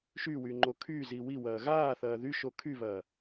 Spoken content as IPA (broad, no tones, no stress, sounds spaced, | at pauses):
ʃ y w y ŋ͡ǃ o kʰ y z i w i w ɐː ɣ aː θ ɐː ð y ʃ o kʰ y β ɐː